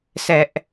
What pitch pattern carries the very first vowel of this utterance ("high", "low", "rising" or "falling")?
high